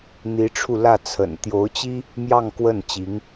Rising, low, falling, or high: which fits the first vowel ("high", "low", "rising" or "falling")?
rising